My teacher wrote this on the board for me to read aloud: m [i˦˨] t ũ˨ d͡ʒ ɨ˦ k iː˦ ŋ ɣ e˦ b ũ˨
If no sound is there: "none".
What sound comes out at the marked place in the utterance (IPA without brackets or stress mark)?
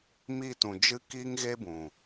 i˦˨